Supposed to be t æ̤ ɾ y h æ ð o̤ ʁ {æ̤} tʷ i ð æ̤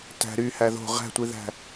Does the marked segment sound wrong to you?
no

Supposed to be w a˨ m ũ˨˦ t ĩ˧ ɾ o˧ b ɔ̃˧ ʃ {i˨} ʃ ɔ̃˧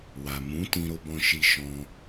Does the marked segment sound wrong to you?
yes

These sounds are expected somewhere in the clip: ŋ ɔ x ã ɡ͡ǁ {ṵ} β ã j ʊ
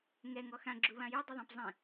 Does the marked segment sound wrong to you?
yes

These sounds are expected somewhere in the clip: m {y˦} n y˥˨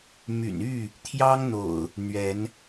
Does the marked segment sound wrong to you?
yes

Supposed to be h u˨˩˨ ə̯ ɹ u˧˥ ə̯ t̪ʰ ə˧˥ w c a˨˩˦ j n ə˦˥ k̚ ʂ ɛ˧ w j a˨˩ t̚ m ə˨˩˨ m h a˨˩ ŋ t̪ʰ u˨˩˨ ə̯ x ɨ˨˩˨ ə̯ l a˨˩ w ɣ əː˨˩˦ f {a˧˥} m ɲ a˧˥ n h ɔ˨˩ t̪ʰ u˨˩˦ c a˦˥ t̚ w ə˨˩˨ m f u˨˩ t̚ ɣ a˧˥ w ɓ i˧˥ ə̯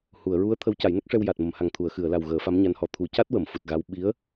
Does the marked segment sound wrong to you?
no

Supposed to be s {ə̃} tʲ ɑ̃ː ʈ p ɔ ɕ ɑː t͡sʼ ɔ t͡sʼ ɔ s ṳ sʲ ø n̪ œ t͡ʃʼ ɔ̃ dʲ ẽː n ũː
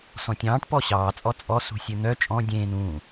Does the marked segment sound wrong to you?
yes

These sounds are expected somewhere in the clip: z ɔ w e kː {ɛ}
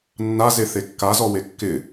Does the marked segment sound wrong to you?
yes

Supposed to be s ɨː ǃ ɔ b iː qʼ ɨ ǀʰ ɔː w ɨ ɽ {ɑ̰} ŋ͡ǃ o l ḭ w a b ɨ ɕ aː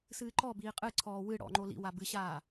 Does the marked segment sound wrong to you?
yes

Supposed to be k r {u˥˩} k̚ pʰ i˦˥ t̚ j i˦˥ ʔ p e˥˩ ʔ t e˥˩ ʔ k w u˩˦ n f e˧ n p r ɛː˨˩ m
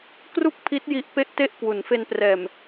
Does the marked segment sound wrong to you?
no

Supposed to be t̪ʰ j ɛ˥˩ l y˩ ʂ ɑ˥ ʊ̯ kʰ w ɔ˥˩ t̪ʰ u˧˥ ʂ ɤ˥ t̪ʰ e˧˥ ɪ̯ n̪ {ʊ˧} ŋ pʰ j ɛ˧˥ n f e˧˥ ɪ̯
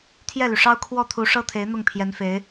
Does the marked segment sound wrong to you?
yes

